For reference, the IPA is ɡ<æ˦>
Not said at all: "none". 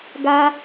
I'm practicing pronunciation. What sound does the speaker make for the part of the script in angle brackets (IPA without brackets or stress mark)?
a˦